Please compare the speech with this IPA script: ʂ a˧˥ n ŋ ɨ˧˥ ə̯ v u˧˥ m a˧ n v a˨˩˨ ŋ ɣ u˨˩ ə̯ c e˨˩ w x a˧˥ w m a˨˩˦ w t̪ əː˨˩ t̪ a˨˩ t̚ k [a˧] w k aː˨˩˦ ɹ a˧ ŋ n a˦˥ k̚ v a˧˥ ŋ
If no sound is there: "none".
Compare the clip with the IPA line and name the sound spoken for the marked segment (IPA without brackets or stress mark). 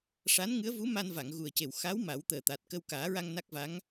ə˧